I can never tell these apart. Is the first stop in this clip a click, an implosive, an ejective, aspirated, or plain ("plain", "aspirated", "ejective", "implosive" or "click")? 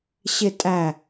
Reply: ejective